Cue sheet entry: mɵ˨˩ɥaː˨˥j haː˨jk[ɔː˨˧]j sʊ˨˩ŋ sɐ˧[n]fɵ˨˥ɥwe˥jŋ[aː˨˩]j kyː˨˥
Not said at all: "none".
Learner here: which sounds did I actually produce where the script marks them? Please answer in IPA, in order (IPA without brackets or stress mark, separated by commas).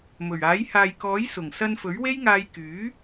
ɔː˨˥, n, aː˧